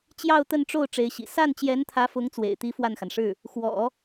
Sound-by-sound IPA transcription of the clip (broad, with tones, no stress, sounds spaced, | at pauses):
t͡ɕ j ɑ˥˧ ʊ̯ t̪ ə˥˧ n ʈ͡ʂ o˥˩ ʊ̯ ʈ͡ʂ e˧˥ ɪ̯ ɕ ḭ˨˩ s a˥˩ n t͡ɕ j ɛ˧˥ n t̪ʰ ä˧˥ f ʊ˧˥ ŋ t͡s w ḛ˨˩ ɪ̯ t̪ i˧˥ f w a˥˩ n x a˩ n ʂ ɻ̩˥˩ | x w ɔ̰˨˩˦